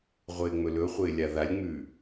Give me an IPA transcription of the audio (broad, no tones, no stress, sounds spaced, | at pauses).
ʁʷ ɪː ŋ͡m ɵ l ɵ χʷ ɪː lʲ a ð a lʲ ŋ͡m ʉː